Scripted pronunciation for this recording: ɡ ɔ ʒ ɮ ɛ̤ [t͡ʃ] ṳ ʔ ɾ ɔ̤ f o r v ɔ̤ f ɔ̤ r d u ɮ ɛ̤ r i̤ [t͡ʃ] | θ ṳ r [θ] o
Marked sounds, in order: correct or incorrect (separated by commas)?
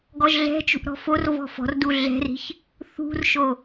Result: correct, incorrect, incorrect